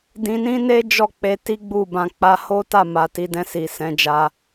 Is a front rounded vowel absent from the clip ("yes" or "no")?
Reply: yes